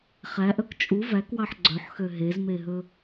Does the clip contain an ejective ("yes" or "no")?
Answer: yes